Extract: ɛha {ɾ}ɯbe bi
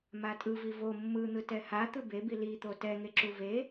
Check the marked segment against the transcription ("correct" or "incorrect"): incorrect